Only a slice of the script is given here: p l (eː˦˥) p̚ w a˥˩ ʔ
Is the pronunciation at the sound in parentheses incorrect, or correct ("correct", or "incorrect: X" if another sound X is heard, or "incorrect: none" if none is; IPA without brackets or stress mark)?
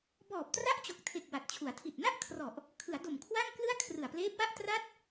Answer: correct